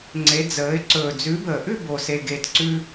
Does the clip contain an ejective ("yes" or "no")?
no